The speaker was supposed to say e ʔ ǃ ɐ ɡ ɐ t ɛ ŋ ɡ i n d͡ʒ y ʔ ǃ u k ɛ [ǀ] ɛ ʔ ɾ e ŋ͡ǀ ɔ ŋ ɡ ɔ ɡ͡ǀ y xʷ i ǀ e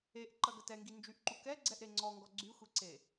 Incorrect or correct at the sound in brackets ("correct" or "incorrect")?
incorrect